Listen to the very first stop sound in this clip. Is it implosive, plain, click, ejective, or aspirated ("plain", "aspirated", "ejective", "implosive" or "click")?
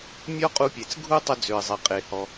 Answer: ejective